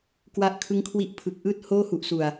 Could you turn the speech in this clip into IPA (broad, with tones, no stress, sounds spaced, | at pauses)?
k w a˦˥ ʔ kʰ ɯ˦˥ ŋ kʰ w i˦˥ ʔ pʰ ɯ˨˩ k̚ ʔ ɯː˥˩ t̚ h oː˥˩ h u˨˩ ʔ s u˨˩ a̯